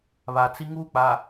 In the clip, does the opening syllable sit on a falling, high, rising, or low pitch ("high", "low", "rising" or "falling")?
low